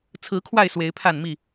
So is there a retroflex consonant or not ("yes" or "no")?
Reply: no